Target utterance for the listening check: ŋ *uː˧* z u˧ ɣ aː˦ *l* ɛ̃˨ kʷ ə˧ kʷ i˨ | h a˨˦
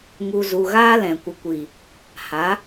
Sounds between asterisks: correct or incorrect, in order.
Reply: incorrect, correct

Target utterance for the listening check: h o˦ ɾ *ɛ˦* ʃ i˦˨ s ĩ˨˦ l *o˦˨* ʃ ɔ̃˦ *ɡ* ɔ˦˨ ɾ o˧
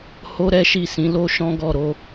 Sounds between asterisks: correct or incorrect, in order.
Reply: correct, incorrect, correct

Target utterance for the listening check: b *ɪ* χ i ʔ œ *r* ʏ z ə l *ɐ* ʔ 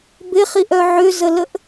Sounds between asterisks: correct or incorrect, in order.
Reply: correct, incorrect, incorrect

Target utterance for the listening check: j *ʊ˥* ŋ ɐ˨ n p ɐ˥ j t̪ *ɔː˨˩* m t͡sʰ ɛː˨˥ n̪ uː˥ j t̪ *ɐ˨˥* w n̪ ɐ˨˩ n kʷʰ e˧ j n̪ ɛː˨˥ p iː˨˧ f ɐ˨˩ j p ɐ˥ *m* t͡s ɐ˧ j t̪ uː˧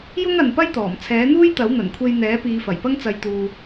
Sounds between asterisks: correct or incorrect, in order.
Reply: correct, correct, correct, incorrect

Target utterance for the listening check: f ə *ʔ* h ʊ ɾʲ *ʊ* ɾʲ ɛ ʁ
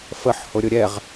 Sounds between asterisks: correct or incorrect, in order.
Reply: incorrect, correct

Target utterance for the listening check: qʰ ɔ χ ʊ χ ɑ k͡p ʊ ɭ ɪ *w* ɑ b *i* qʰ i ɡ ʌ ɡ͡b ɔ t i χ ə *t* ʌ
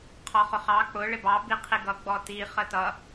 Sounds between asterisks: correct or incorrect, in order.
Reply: incorrect, correct, correct

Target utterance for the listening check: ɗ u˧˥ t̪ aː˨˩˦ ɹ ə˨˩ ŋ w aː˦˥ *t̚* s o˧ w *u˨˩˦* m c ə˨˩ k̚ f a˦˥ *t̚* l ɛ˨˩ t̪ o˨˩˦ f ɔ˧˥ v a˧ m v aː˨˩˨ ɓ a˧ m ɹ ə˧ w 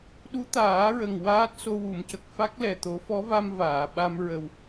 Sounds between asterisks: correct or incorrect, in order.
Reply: correct, correct, incorrect

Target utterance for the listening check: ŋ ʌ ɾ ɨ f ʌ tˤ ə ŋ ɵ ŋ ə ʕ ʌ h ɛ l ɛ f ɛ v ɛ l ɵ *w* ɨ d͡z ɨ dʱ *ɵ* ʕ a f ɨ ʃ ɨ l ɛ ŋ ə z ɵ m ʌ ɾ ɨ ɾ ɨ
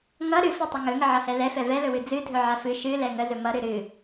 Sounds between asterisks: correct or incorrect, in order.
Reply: correct, correct

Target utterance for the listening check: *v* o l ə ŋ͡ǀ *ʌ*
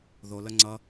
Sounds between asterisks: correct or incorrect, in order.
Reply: incorrect, correct

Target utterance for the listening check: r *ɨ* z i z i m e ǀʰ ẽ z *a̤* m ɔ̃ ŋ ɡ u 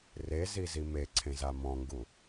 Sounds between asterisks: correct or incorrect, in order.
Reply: incorrect, incorrect

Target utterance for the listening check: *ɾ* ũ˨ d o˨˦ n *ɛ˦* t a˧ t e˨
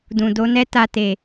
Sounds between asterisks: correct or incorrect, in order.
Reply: incorrect, correct

